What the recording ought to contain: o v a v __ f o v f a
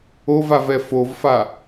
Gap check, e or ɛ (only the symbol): ɛ